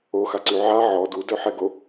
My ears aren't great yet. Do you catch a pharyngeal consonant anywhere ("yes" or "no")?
yes